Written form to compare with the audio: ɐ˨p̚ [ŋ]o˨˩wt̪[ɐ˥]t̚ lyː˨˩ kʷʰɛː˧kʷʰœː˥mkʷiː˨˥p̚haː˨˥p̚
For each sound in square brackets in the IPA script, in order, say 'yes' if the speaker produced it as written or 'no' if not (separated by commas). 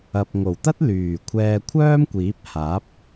yes, yes